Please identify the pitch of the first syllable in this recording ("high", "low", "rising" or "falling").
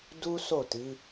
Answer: high